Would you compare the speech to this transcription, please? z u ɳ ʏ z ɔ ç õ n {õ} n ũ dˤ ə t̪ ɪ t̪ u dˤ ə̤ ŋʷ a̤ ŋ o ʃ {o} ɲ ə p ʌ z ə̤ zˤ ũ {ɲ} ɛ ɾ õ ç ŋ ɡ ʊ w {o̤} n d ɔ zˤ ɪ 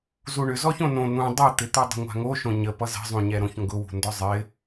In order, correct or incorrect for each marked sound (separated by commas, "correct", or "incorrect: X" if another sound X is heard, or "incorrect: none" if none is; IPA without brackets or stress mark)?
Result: correct, incorrect: õ, correct, incorrect: ṳ